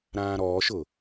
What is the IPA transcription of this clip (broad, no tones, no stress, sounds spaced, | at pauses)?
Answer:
ɾ ãː ɾ ɔː ʃ ʊ